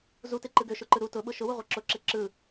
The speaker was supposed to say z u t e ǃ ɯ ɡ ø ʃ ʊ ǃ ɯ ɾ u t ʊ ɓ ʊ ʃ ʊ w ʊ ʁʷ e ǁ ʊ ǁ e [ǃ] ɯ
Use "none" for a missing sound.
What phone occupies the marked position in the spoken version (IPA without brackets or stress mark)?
ǁ